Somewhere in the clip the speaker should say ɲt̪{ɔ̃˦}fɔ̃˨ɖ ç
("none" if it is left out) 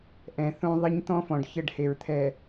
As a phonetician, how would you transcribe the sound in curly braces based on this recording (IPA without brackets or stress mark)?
ɔ̃˦